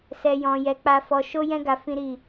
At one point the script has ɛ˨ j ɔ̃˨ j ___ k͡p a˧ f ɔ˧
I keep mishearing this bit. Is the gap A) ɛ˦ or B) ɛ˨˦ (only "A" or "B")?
B